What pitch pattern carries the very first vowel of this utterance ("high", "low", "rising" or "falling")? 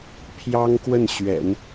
high